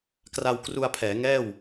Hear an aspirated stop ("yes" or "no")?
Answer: yes